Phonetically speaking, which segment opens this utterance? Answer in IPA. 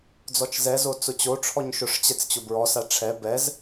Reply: d͡z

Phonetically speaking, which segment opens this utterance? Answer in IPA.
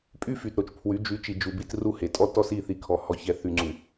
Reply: pʼ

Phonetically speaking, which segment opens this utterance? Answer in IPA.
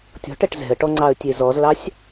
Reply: tʲ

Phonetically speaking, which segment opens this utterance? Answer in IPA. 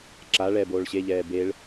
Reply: ǁ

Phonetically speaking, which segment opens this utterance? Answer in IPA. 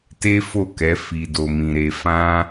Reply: t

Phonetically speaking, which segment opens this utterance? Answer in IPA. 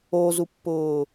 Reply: o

